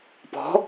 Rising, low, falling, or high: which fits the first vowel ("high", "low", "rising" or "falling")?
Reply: rising